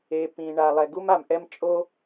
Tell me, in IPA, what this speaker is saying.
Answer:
e˩ p ĩ˩ ɳ a˩ lˠ ɛ˩ ɡ u˥ m a˩ m ʔ ɛ˥ m t͡ʃʼ o˥

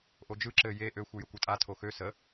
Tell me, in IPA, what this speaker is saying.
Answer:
ʔ o d͡ʒ ɯ ǁ ɘ j e ʔ ø xʷ ɯ j ə kʷ ɯ tʼ a tʰ o x ø s ə

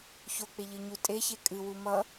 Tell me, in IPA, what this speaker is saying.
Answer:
ç o k͡p e ʎ ɨ ɲ u tʼ e ç e kʼ ɨ w u m ʌ

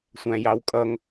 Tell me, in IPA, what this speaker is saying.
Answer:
sʷ æ̃ j ɑ w kʼ ʌ ŋ

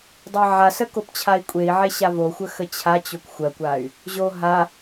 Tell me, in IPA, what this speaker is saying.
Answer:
dˤ ɜ ʕ a s ə k o p t͡ɕʰ a i̯ kʷʼ e i̯ ʕ e ɕ a v o xʷ ə x ə t͡ɕʰ a t͡ɕ o kʷ xʷ ɜ kʷ a y̯ | ʑ o ɦ a

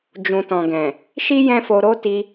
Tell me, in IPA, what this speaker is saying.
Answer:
d͡ʒ ũ˨ t ɔ̃˨ ɡ ɛ̃˨ | ʃ i˦ j ɛ̃˦ f o˧ ɾ o˦ t i˧

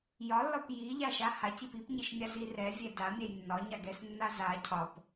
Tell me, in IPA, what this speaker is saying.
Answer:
j ɒ lː ɒ p j i ʎ a ʃ a h a c i p i p ɲ i ʃ mʲ a z i r ɛ vʲ ɛ d a mʲ ɛ j nː ɒ ɲ a ɡ ɛ s nː a z a cʰ ɒ p

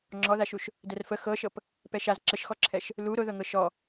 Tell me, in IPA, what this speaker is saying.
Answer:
ŋ͡ǁ ɔ ð a ʃ u ʃ | d ɛ r f ə x ɤ ʃ ɤ p | p ɛ ʃ a z ǁ ə ʃ x ɔ ǁʰ ɛ ʃ | l u ɾ ʊ ð ɤ ŋ ɤ ʃ ɔ

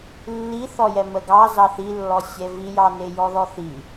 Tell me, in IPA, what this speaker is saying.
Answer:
lː i θ ɔ j ɛ m ə ɡ ɑ z ɑ θ i lː ɔ sʲ ɛ v i j ɑ n e j ɔ ð ɔ θ i

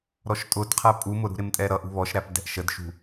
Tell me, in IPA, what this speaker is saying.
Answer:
ɾ ɔ ʃ tʼ ʊ d qʰ æ pʼ u m ʊ ɾ ṳ ɾ ɪ m tʼ ɛ ɾ ʌ ʔ ṳ β ɔ ʃ ɾ æ p d ɛ̤ ʔ ʃ ə d ʃ ṳ

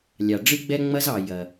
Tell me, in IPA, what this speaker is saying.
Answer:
lʲ ɑ˨ ɖ͡ʐ ɨ˦ ɡ͡b ɛ˦ ŋ͡m ɐ˦ z ɑ˨ j ɐ˨

